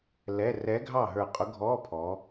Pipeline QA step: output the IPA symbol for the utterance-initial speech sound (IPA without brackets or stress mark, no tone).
l